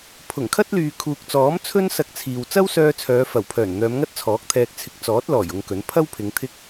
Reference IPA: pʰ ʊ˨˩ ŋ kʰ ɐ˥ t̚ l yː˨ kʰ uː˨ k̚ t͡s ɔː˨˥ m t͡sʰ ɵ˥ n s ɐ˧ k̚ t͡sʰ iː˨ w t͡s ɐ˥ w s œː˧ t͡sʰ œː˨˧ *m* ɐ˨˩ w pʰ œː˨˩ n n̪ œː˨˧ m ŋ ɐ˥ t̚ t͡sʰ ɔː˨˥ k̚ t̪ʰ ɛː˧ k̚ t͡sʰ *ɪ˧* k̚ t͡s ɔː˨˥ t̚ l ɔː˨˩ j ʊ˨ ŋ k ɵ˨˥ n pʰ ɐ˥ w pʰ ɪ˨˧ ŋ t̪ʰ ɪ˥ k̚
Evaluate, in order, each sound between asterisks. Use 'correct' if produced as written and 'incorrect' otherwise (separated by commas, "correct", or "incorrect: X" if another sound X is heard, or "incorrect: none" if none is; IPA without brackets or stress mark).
incorrect: f, correct